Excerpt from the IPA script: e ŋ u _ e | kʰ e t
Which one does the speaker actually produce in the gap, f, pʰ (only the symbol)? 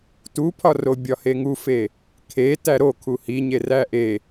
f